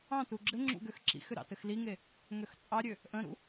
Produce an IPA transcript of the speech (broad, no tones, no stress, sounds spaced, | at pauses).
ɑ̃ t u ɡ͡ǁ ɘ ŋ͡ǁ ṵ ɡ ø x ǁ ḭ x ʏ ɾ ɑ̰ t ɘ x l i ŋ e | ŋ ø x t͡sʼ ɑ ɾʲ ø | ʔ ə̃ ɾ ṵ